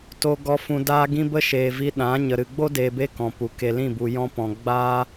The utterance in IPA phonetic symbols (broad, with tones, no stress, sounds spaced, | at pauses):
t o˧ ɡ ɔ˧ f ũ˧ d aː˦ ɡ ĩ˦ b ə˦ ʃ eː˨ v i˧ ɗ ã˨˦ ɲ ə˨ ɾ ɨ˨ ɡ͡b o˦ d eː˨ b e˧ k ɔ̃˨ p u˨ k e˨ l ĩ˦˨ b u˨ j ɔ̃˧ p ɔ̃˨ ɡ͡b aː˦